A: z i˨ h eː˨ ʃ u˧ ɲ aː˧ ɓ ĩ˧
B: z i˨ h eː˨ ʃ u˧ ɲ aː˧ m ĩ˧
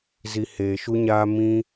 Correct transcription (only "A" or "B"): B